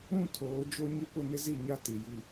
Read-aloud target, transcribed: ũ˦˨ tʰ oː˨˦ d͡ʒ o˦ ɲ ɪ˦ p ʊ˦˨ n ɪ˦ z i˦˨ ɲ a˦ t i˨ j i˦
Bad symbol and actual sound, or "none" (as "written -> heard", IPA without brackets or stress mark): none